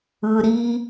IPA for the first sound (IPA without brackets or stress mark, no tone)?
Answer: ɯ